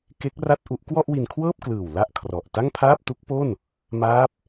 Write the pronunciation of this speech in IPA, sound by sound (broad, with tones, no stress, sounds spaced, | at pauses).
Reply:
k e˦˥ k̚ r a˥˩ t̚ ʔ u˦˥ ʔ k w ɔ˥˩ ʔ w i˧ n kʰ w ɤː˥˩ p̚ k l ɯː˨˩ w l a˥˩ ʔ kʰ r ɔ˨˩ ʔ t a˥˩ ŋ pʰ aː˥˩ p̚ t u˦˥ k̚ p o˥˩ n | m aː˦˥ p̚